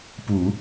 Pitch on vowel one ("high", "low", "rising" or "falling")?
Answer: low